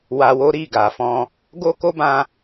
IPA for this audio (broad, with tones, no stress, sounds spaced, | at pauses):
w a˧ w o˦ ɾ i˦˨ ɡ a˨ f ɔ̃˧ | ɡ o˦ k o˦ b ã˦